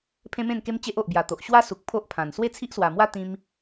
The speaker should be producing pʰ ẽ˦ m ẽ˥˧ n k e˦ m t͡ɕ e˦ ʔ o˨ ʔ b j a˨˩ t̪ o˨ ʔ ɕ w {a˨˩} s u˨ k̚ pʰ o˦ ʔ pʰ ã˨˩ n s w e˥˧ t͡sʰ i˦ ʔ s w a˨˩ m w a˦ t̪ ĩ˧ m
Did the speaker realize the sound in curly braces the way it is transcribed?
no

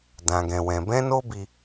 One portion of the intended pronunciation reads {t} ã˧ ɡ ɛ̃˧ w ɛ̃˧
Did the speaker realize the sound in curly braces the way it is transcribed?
no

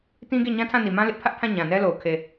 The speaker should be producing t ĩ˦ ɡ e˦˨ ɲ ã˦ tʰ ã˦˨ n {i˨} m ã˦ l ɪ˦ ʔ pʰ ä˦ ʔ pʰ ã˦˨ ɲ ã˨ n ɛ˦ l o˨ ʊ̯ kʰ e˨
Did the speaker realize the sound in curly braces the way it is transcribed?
yes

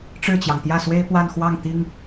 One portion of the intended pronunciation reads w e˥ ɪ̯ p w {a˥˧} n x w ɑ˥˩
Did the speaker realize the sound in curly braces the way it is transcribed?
yes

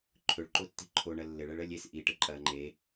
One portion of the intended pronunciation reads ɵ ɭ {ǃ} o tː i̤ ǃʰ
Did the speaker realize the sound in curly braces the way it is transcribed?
yes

